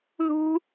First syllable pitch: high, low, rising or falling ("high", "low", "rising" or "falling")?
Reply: high